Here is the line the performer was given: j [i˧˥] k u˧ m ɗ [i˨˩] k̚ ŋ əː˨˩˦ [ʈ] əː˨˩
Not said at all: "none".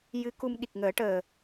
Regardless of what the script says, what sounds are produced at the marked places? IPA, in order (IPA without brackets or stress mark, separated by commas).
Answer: ɨ˧˥, i˨˩, ʈ